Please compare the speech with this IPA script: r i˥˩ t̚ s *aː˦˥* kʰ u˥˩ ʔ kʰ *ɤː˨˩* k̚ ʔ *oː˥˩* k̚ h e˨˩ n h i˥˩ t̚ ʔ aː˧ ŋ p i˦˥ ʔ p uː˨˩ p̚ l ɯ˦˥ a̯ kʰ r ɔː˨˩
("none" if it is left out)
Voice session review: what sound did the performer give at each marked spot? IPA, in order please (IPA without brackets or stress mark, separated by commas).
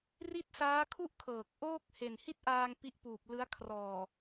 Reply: aː˦˥, ɤː˨˩, oː˥˩